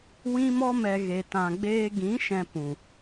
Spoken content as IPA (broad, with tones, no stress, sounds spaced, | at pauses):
w ĩ˦ m ɔ˦ m ɛ˧ ɣ e˧ t ã˧ ɡ͡b eː˦ ɡ ĩ˨˦ ʃ ɛ̃˧ p ũ˨